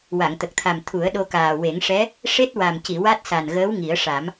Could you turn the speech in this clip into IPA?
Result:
w a˨˩˨ ŋ t̪ ə˨˩ k̚ t̪ʰ a˨˩ m t̪ʰ u˨˩˦ ə̯ ɗ o˧ k aː˨˩ w e˨˩˦ ŋ ʂ ɛ˧˥ | ʂ e˦˥ t̚ w a˨˩ m c i˨˩˨ w a˦˥ t̚ s a˨˩ n ɣ əː˧˥ w ŋ i˨˩˦ ə̯ ʂ a˨˩˦ m

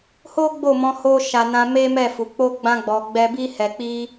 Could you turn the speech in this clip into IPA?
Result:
h o˦ ɡ͡b o˦˨ m ɔ̃˧ h o˦ ʃ a˧ n ã˧ m e˦ m ɛ˦˨ f u˨ k͡p o˧ ɡ͡b ã˧ ɡ͡b ɔ˨ ɡ͡b ɛ˧ b i˧ h ɛ˨ k͡p i˧

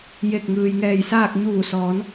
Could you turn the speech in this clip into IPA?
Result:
j e˧˩ k̚ ŋ ɯː˩ j ŋ ɛː˧˩ j s aː˥˨ k̚ ɲ uː˧˩ s ɔː˩˧ n

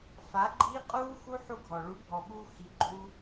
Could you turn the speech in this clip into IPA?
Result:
f a˨˦ ɡ͡ǃ iː˦ qʼ uː˦ x u˦ ħ u˦ ɡʱ ɔ˨ ɭ u˨˦ bʱ ɔ˨ ɓ uː˧ x i˨˦ ɡ͡ǃ uː˦

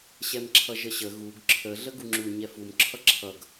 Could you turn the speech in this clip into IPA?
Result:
ɕ ɛ m ǁʰ ʌ ʒ ə ɕ ə ɣ u ɡ ǁʰ ə ɮ ə ɡ u ŋ͡ǁ u ɲ ɛ f u m ǁʰ ʌ ǁʰ ʌ ɡ

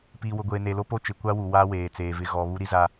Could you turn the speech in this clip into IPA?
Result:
p iː˨ w ʊ˨ ɡʷ eː˨ n e˨ l o˦ p o˦ t͡ʃ ɪ˨ kʷ a˦ w u˨ w aː˦ w eː˨ t͡s eː˨ v ɪ˦ ɣ ɔ˨ β u˦ ɾ i˦ z a˦

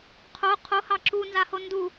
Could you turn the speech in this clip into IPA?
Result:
qʰ o qʰ o h ɑ ǁ u n z a h o n d u

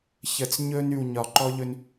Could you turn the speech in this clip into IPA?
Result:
ç ə˨ t͡s ɲ ɵ˧ n ʉ˨ w ɲ ɒ˨ ǃ ɔ˦ ʎ ɵ˧ n

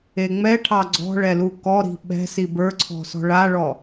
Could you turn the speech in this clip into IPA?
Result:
e ŋ͡m ɛ ʈʰ ɑ ɡ͡ǀ ɔ̤ ɭ ɛ l u k ɔ ɾ i̤ ɓ ɛ̤ s i b ə˞ ǀʰ ɔ̤ s ɔ̤ ɭ a ɭ ɔ

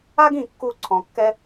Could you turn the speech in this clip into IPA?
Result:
a˥ ɡ ĩ˥˧ kː u˥˧ ǀʰ ɔ̃˧ kː ɛ˥

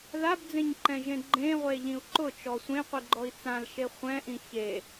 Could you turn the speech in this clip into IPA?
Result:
ð a b d͡z ẽ ɲ ǃ ɛ̃ ʒ ẽ ɡ͡ǃ ẽ ʁʷ e ʎ ĩ u̯ ǃ ʊ t͡ʃ ɔ sʷ ẽ qʷ i ɡ͡ǃ ɔ i̯ t͡s ã l ʃ e χʷ ɛ̃ ʔ ĩ ç e

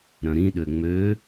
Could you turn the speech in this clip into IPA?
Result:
ɾ œ̃ ɾ ĩ ɗ ø ŋ͡m ø

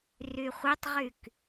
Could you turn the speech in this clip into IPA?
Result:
r y χʷ e tˤ ʁ y k

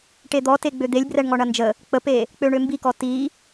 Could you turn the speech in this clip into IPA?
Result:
ʈ e d̪ ɔ t e ɡ͡b ø d̪ e lʲ b r ɛ ɳ ŋ ɔ ɳ ɐ n d͡ʒ ə | k͡p ə p e | k͡p ø ɳ ø m b i k ɔ t i

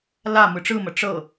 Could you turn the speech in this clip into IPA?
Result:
l a m ɯ ʈ͡ʂ ɯ m ə ʈ͡ʂ ɤ

